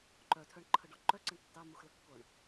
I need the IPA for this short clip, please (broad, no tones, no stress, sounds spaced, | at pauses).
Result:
ǃ œ tʰ œ ɳ ǃʰ ə ɖ ɔ ǃ œ ǀ ə ɳ tː ɑ m u x l ə kː o ɳ